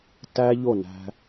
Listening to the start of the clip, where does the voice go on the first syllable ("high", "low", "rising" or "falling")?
high